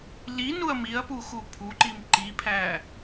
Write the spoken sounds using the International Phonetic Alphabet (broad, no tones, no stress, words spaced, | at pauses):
li nuɐ̯miɐ̯pu xupʰuǃim ǃipʰæ